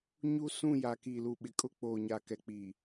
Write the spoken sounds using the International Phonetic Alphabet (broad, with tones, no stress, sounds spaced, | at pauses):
ɲ u˦ s ũ˦˨ j a˨ k iː˨ l u˨ ɓ ɪ˨ kʼ ʊ˦˨ k͡p oː˨ ɲ a˨ k ɛ˨ k͡p iː˨